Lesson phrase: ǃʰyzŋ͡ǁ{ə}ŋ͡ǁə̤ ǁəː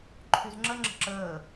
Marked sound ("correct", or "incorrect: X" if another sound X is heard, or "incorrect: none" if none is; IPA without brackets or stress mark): correct